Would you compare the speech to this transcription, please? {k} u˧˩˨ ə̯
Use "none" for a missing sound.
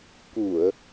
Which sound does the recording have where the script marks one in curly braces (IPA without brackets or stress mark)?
k